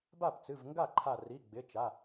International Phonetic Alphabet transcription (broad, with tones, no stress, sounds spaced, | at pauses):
b a˥˩ p t͡s ɨ˩˧˩ v ŋ ɡ a˥˩ ǃʰ a˧˩ r i˩˧˩ ɡ͡b ɪ˩˧˩ t͡ʃ a˩˧˩